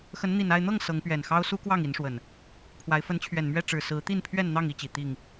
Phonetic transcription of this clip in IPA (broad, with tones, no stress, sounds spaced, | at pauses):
x ə˨˦ n n̪ i˨˩ n a˥˨ ɪ̯ n̪ ɤ˥˨ ŋ s ɤ˨˦ ŋ p ɥ ɛ˨˩ n x ɑ˦ ʊ̯ s u˦ k w ɑ˥˨ ŋ i˨˦ n ʂ w ə˨˩ n | pʰ w a˨˦ ɪ̯ f ə˨˦ n t͡ɕʰ ɥ ɛ˨˩ n m ɥ ɛ˥˨ ʈ͡ʂ ɻ̩˨˩ s ɹ̩˨˦ t̪ i˥˨ n pʰ ɥ ɛ˥˨ n n̪ ɑ˥˨ ŋ i˦ t͡ɕ i˨˩ t̪ i˥˨ ŋ